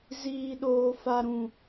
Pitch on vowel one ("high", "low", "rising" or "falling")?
high